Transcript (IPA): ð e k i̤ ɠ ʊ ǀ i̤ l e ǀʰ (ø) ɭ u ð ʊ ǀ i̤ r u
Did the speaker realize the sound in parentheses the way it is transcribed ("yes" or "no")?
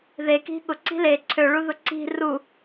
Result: yes